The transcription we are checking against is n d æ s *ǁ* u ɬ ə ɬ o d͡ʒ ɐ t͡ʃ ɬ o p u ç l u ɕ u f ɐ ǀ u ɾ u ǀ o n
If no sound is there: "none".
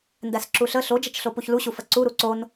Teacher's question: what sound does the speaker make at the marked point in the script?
ǁ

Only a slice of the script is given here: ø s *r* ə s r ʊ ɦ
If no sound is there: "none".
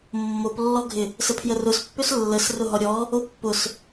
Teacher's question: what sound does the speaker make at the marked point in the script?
lː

